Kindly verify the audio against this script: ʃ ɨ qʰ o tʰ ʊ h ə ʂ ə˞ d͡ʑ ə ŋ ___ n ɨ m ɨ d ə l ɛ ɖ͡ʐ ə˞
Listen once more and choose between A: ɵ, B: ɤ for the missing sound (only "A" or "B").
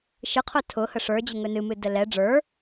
A